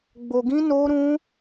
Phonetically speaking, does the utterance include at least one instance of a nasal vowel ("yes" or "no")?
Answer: yes